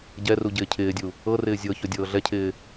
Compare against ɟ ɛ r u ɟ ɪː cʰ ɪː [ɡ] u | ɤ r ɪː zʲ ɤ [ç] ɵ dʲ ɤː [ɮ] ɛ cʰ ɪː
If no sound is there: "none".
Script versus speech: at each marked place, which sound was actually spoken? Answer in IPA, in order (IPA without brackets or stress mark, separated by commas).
dʲ, ç, ɮ